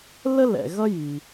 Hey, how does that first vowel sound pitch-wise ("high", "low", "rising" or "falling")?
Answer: high